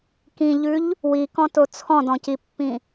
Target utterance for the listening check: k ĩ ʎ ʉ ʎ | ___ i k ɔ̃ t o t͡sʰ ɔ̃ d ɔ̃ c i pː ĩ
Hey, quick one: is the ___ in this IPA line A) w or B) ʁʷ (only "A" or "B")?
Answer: A